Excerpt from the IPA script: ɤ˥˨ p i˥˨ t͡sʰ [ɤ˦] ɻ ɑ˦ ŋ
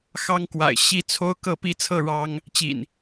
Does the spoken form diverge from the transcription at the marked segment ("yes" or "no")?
yes